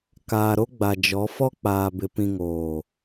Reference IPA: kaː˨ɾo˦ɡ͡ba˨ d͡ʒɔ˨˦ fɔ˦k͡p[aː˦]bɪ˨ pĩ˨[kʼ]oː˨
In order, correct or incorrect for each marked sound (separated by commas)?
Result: incorrect, incorrect